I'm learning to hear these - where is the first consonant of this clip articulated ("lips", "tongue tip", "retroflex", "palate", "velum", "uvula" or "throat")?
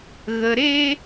velum